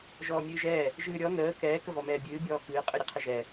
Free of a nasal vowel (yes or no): yes